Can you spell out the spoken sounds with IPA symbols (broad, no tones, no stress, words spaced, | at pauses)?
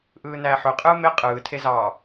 ʔɯːnæːħøqʼɯː me qʼɯːtʰe zɑ